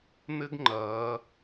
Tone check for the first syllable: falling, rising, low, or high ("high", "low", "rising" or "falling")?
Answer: high